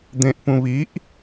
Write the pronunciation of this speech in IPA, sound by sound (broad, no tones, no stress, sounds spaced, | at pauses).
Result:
d̪ ẽ ʔ p ũ β i ʔ